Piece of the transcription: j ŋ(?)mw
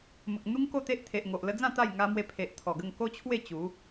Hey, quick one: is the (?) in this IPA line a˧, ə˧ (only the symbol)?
a˧